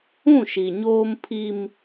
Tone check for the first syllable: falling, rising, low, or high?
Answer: falling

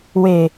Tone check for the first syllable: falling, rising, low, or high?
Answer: low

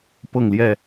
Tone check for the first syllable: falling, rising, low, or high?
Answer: falling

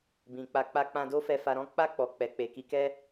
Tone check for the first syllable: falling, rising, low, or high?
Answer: low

